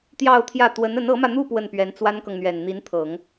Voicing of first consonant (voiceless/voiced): voiceless